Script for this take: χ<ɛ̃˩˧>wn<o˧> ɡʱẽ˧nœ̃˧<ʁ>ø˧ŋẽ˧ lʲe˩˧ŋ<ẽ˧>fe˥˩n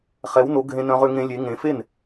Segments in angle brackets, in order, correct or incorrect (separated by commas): incorrect, incorrect, correct, incorrect